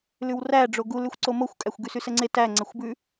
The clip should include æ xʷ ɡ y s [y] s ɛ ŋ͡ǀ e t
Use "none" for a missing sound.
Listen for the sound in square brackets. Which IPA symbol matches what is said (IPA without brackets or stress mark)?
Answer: y